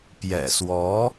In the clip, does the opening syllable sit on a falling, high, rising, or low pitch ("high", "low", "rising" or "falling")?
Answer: low